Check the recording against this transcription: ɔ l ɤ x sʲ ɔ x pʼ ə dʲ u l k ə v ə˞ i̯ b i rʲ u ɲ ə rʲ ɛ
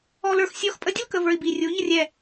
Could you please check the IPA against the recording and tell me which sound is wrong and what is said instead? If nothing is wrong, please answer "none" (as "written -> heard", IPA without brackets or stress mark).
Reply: ɤ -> ə˞